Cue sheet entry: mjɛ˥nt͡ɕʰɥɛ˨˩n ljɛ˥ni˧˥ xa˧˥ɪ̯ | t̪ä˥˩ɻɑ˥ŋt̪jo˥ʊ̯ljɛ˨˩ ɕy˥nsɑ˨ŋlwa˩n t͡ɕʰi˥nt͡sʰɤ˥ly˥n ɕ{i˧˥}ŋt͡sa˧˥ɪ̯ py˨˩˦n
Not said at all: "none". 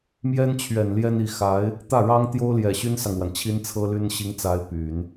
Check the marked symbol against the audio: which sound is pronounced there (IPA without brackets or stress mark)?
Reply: i˧˥